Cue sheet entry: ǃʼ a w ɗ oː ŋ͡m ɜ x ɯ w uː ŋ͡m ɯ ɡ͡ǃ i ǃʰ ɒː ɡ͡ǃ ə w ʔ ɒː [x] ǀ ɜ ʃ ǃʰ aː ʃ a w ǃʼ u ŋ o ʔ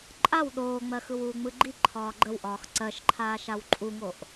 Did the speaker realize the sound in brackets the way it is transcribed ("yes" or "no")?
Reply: yes